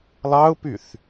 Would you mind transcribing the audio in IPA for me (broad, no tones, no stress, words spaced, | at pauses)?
lˠɑʊ̯pyθ